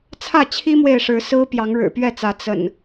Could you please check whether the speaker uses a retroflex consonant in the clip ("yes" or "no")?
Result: yes